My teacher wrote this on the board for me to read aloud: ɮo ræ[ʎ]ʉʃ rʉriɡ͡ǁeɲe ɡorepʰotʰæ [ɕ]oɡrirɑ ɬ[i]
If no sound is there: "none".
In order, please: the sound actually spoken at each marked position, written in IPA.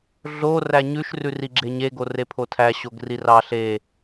ɲ, ɕ, e

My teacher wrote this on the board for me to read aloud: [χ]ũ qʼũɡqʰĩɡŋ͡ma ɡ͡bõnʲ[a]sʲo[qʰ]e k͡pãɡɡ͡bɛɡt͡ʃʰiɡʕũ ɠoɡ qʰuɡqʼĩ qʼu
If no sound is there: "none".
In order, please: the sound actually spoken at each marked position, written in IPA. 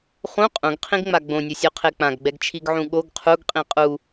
χ, ʌ, qʰ

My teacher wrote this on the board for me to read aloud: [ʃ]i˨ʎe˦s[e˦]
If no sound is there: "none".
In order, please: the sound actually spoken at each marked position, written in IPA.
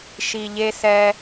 ʃ, ɛ˦

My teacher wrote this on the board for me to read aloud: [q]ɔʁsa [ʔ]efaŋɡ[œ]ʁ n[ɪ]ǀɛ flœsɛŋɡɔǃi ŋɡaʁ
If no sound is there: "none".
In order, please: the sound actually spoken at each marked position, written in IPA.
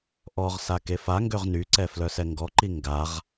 ʔ, k, ø, y

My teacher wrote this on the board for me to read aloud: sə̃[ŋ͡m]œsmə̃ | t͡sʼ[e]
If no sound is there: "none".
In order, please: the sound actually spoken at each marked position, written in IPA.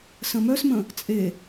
m, e

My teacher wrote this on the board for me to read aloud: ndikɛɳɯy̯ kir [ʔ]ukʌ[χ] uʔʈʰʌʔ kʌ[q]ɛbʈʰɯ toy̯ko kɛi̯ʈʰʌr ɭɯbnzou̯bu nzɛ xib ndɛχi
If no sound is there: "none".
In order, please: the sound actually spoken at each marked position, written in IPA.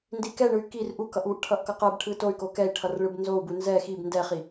ʔ, ʔ, q

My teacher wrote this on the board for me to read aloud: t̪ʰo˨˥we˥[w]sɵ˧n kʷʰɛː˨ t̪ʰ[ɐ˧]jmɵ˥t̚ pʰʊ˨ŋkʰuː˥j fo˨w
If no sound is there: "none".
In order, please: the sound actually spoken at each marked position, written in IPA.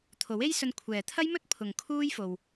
j, ɐ˥

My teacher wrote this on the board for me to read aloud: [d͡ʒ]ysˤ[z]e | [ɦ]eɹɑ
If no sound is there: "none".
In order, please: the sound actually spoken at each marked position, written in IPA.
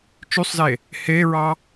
t͡ʃ, z, h

